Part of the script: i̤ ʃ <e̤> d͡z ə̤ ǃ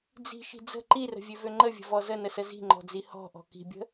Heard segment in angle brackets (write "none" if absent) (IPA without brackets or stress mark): i̤